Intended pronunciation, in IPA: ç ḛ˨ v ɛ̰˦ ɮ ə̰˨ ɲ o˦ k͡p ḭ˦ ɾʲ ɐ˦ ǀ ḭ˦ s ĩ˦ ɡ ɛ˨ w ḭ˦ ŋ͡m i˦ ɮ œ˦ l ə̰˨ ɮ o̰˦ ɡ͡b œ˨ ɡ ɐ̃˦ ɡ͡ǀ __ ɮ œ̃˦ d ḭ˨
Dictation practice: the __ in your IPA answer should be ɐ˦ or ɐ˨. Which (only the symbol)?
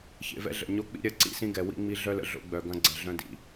ɐ˨